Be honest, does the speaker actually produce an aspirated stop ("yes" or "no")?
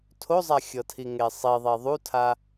yes